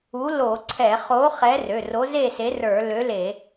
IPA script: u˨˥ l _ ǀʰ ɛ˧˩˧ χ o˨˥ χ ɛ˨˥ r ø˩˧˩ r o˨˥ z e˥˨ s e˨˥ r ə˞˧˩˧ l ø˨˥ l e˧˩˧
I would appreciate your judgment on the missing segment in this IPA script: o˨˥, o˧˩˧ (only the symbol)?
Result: o˧˩˧